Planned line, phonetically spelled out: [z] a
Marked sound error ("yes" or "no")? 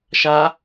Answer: yes